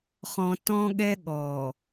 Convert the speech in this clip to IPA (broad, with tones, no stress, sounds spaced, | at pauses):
χ ɔ̃˨ t ɔ̃˦ ɠ ɛ˦ ɠ ɔ˨